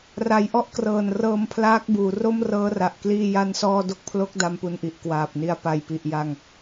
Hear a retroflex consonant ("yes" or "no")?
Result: no